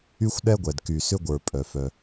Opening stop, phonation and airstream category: implosive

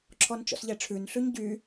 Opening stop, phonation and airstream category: click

